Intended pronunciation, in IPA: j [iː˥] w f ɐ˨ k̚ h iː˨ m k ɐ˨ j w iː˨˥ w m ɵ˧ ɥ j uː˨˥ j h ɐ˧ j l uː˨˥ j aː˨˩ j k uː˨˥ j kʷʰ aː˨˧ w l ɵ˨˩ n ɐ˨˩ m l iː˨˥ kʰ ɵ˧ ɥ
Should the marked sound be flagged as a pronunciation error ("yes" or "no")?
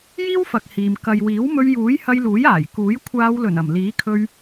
no